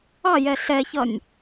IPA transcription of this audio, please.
ɑ j ɛ ɬ ɛ ç ʌ nʲ

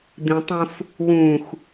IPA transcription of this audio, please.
d̪ ĩ tˤ õ f | w ũ x

